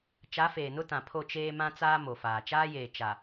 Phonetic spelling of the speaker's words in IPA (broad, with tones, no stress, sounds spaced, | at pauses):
t͡ʃ a˨˦ f eː˨ n ʊ˦ t ã˨ pʰ o˦˨ t͡ʃ eː˦ m ã˦ t͡s aː˦ m o˨ f aː˨ t͡ʃ aː˦ j eː˨ t͡ʃ a˨